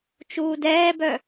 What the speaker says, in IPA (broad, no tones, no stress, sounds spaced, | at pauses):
t͡ʃ uː d ɛː b œ